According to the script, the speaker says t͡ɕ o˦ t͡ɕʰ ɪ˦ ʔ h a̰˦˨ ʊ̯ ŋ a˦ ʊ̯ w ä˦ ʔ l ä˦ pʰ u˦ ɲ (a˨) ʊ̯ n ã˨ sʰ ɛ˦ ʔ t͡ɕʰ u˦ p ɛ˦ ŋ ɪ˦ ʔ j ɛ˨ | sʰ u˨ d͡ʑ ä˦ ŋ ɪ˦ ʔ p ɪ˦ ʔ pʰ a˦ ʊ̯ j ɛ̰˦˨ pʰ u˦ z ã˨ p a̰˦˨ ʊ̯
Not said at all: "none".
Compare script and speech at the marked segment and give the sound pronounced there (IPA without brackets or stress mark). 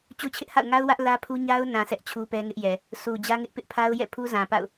a˦